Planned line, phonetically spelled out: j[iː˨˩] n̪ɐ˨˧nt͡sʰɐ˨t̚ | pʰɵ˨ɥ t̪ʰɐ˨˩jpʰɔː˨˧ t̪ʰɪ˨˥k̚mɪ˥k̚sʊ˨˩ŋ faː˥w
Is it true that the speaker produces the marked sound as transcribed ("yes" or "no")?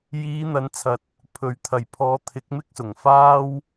no